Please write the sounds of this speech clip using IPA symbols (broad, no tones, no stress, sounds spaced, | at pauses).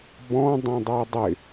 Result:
b ɔ̃ dˤ ĩ dˤ e dˤ ɪ